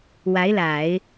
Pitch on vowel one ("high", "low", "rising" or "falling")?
rising